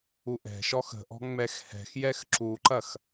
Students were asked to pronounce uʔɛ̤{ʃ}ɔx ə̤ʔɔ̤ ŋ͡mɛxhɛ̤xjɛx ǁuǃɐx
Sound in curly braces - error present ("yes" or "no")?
no